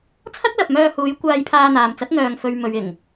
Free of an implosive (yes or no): yes